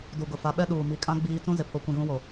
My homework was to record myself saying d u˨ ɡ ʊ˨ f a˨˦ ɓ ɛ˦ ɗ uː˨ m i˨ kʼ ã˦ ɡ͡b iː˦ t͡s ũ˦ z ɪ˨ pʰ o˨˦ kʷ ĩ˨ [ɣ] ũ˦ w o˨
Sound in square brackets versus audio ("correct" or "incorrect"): correct